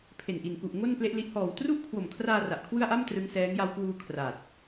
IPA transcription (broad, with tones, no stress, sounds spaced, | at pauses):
pʰ e˨˩ n ʔ i˨˩ n k u˨˩ ʔ ŋ o˥˩ n p l e˦˥ ʔ l i˦˥ ʔ h ɔː˨˩ w t r u˥˩ ʔ kʰ w o˨˩ m kʰ r aː˧ r a˨˩ ʔ kʰ w ɯ˥˩ a̯ ʔ a˥˩ m t r ɯ˦˥ ŋ s ɛː˦˥ ŋ j a˧ w k w uː˧ kʰ r a˨˩ t̚